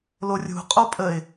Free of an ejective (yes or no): no